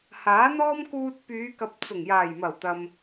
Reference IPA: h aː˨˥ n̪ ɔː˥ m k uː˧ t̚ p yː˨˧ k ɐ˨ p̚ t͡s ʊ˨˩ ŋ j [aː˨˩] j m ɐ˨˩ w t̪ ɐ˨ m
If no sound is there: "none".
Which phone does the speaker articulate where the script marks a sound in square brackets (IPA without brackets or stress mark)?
aː˨˩